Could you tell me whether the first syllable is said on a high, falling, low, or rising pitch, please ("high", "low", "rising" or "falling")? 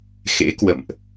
rising